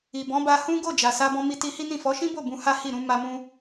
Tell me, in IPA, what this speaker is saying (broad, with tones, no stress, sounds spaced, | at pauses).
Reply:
i˨ b ɔ̃˨˦ b a˧ h ũ˦ ɡ o˦˨ d͡ʒ a˨ s a˧ b ɔ̃˧ m i˧ t i˧ h i˦ n ĩ˦˨ f ɔ˨˦ ʃ ĩ˦ b o˦˨ b ũ˧ h a˦ h i˦˨ ɾ ũ˨˦ m a˧ m ũ˧